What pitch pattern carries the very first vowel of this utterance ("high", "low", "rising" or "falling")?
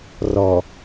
low